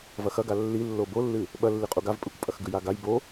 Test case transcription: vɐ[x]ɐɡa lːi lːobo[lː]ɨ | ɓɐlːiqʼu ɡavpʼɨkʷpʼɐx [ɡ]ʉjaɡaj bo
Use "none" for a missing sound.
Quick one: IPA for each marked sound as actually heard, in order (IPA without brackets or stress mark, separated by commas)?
x, lː, ɡ